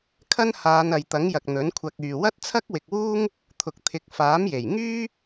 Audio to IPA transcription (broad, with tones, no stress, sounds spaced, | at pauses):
kʰ ɐ˥ n h aː˨˧ n ɐ˨ j t̪ ɐ˨˥ ŋ j ɐ˨ k̚ n̪ ɵ˨˥ n kʷʰ ɐ˧ k̚ yː˨ w ɐ˥ t̚ t͡sʰ ɐ˥ k̚ w ɪ˨ k̚ w uː˥ ŋ | t̪ʰ ʊ˨ k̚ t̪ʰ ɪ˨˥ k̚ f aː˨˥ m j e˨˩ j ŋ yː˥